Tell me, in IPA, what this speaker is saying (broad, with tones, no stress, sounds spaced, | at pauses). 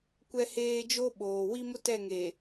kʷ ɛ˦ h eː˦ d͡ʒ o˦ ɓ oː˨ w i˦ m ʊ˦ t ɛ˦˨ ŋ e˨